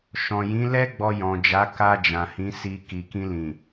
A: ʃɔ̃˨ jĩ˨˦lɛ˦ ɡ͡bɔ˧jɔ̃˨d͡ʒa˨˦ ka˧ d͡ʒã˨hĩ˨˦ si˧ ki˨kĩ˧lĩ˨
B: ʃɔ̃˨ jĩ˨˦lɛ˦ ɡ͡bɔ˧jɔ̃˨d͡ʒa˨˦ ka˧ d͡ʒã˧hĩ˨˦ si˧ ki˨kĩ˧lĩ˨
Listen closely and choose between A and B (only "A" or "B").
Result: A